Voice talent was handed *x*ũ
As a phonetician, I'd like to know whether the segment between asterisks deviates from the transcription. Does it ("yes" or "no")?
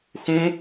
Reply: no